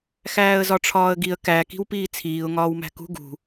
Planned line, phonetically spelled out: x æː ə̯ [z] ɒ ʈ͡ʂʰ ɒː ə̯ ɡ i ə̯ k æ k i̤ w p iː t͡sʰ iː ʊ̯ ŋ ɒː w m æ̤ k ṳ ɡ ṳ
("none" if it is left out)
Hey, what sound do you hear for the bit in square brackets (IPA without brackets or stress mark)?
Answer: z